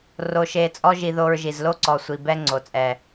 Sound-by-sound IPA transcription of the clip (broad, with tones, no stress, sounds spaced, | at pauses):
r o˧ ʃ e˧ t͡sʼ ɔ˦ ʒ i˧ ð o˧ ɹ ʒ i˨ z l o˦ ǀ ɔ˨ sʷ i˨ b ɛ˦ ŋ͡ǀ o˨ t͡sʼ ɛ˨